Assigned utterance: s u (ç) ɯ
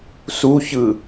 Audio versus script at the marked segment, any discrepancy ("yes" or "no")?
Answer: no